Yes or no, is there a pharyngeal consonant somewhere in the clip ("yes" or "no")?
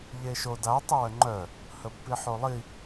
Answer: yes